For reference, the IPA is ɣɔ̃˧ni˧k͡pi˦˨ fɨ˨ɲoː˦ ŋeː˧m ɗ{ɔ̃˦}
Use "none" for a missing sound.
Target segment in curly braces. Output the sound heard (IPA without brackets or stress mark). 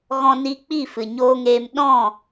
ɔ̃˦˨